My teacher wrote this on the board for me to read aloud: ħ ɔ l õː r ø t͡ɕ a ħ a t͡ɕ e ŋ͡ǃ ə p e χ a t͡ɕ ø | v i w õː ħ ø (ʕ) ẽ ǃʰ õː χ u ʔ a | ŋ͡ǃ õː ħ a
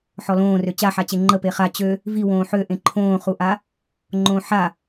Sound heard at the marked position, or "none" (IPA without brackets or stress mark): ʔ